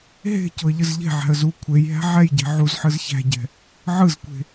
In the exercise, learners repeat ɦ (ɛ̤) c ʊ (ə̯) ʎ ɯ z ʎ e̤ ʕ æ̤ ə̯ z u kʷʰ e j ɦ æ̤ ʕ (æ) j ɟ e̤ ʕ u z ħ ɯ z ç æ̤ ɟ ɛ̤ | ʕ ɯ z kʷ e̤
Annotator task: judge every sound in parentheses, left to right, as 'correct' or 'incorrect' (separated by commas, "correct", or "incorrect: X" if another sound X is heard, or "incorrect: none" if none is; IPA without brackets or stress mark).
incorrect: e̤, correct, incorrect: ɛ